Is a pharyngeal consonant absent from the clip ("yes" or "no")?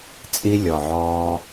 no